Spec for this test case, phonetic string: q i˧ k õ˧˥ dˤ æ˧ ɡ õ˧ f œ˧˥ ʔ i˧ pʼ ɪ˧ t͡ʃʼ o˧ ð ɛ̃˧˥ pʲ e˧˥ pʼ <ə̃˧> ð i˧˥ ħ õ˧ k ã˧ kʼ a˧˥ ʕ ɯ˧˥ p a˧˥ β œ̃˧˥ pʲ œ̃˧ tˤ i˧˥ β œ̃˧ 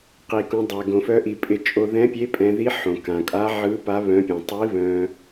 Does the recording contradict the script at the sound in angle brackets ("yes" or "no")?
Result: yes